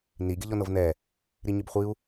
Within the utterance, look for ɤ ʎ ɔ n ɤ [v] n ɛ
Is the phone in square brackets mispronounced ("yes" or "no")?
no